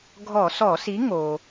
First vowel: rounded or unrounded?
rounded